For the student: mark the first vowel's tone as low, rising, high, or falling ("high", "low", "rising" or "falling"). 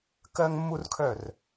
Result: high